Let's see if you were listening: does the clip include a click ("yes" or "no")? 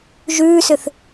no